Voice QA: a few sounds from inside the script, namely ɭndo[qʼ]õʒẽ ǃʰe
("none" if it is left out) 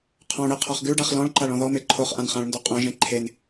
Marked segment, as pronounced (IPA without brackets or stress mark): qʼ